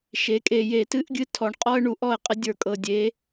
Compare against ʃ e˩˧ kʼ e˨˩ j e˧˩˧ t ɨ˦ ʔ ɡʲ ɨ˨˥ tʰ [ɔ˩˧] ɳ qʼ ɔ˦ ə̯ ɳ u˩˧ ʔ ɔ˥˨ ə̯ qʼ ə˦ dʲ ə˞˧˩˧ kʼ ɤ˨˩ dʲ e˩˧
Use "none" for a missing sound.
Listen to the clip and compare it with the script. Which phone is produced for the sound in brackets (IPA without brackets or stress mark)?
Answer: ɔ˩˧